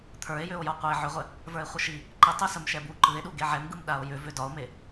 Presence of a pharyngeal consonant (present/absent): present